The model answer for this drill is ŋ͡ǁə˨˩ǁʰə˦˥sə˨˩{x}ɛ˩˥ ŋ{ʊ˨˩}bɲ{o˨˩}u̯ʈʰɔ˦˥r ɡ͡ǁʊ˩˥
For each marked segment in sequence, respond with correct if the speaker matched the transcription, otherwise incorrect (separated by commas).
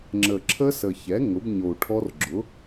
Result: incorrect, incorrect, correct